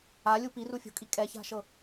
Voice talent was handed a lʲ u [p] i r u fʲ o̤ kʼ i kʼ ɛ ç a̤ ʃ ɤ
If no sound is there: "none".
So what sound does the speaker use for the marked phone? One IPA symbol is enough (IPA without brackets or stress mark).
p